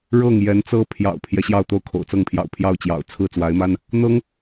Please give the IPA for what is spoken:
ɻɤ˥˩ŋ jɛ˧˥nt͡sɤ˥ pʰjɑ̰˨˩ʊ̯pʰjɛ˦ ɕjɑ˥˧ʊ̯t̪o˥˩ʊ̯kʰo̰˨˩ʊ̯t͡sɤ˥˩ŋ pʰjɑ̰˨˩ʊ̯pʰjɑ˥˩ʊ̯t͡ɕjɑ̰˨˩ʊ̯ t͡sʰɹ̩˥˩ t͡swa˧˥ɪ̯ma˥n | n̪ɤ˥ŋ

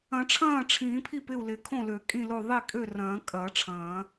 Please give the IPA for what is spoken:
ɐ̃˨˩˦ʈ͡ʂʰɐ̃ː˥˩ʈ͡ʂʰĩː˨˩˦pʰi˥˩p ɪ˥˩u̯lɪ˨˩˦ kʰõ˥˩lø˨˩˦ kʼĩ˥˩lo˥˩ ðˤi˥˩kʼø˥˩rɐ̃ː˨˩˦ kʼɐ˨˩˦ ʈ͡ʂʰɐ̃ː˨˩˦

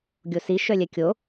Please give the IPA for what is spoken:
ɡʲosi ʃœlʲɛkʲo

